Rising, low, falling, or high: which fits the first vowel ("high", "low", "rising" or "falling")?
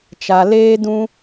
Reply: low